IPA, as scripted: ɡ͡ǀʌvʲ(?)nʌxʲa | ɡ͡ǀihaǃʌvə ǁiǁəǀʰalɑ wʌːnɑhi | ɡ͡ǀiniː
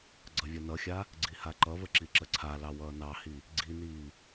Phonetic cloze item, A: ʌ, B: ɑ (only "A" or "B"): A